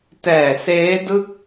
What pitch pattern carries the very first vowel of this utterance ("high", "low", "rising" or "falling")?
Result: low